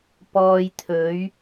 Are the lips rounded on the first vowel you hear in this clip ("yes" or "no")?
yes